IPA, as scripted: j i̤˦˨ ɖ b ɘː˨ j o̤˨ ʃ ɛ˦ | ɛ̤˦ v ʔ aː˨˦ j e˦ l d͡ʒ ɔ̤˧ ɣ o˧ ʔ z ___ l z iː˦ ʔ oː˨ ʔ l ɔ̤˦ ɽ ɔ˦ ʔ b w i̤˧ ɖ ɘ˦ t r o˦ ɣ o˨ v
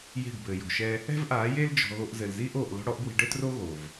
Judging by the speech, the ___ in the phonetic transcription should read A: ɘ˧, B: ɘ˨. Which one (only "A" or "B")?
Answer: B